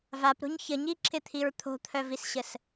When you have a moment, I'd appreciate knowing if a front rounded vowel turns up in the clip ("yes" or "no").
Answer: yes